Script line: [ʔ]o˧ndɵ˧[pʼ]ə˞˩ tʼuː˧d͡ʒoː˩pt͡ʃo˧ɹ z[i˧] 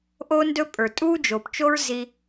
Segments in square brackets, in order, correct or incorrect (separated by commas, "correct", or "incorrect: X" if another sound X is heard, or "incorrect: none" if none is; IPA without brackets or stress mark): correct, correct, correct